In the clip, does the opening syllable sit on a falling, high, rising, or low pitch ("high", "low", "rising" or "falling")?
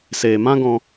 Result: low